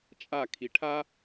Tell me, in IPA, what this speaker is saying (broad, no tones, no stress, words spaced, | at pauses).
t͡ʃʼakʰi ʈʰa